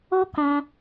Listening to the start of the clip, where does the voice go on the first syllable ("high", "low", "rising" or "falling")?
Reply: high